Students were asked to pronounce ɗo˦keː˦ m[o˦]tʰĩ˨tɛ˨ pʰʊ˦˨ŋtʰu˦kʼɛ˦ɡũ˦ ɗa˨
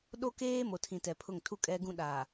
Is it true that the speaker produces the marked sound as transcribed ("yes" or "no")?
no